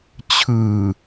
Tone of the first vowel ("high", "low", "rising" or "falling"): low